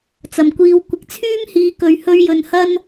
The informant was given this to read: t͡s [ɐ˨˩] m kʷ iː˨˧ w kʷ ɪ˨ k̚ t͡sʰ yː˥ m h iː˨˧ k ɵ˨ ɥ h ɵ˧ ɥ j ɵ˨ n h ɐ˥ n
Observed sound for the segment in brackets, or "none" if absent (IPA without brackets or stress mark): ɐ˨˩